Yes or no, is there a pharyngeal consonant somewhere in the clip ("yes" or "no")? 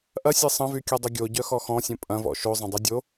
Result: no